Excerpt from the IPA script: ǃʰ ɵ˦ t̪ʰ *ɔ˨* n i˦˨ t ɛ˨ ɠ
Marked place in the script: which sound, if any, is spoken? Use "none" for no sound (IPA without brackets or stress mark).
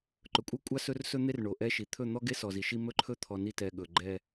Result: ɔ˨